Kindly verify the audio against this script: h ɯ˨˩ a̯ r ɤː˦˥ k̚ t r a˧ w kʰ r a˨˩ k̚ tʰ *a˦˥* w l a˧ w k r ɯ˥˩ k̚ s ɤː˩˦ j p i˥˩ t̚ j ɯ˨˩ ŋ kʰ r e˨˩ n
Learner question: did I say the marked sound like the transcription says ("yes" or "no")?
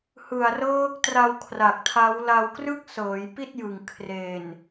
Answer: yes